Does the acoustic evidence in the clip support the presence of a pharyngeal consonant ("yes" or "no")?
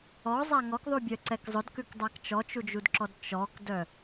no